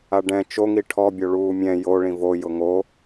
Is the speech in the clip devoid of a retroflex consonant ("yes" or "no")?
no